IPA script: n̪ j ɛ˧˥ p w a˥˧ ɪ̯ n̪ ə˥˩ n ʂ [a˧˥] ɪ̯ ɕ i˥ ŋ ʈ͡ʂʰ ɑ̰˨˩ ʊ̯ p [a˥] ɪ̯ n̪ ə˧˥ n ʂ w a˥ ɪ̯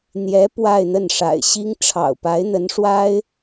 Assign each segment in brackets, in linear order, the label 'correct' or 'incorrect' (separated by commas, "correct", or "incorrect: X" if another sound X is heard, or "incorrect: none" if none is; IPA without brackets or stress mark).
incorrect: a̰˨˩, incorrect: a˧˥